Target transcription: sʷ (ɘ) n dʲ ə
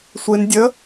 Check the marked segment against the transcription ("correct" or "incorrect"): incorrect